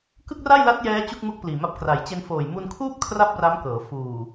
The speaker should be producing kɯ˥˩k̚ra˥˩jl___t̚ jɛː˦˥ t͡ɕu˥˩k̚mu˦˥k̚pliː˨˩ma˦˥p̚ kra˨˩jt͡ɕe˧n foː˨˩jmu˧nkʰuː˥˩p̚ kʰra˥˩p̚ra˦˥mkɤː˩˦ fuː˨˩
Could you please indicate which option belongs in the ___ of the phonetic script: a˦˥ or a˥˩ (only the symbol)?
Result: a˦˥